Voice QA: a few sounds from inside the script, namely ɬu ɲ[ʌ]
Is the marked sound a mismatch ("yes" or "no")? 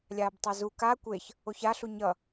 no